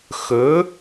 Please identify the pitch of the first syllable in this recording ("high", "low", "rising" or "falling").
rising